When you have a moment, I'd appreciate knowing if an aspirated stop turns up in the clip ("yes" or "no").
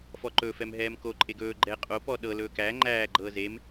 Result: no